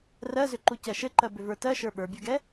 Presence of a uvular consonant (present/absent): absent